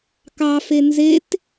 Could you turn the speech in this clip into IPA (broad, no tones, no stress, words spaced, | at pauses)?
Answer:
kɑfe nzet